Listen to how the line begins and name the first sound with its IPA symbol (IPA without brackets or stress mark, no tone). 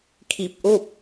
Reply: kʰ